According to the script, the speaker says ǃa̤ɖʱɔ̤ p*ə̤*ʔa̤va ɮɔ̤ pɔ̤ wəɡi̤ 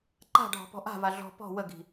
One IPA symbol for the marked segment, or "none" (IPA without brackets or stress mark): ɔ̤